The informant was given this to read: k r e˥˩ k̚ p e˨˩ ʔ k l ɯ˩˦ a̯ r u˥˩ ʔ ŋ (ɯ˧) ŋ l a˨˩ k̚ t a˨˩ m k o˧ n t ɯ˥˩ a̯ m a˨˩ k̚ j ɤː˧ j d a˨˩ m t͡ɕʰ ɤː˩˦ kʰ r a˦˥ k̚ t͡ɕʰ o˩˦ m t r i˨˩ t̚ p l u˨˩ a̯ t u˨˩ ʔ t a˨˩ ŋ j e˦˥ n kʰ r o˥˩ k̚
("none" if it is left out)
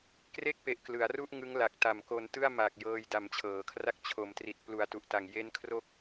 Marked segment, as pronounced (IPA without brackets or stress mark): ɯ˦˥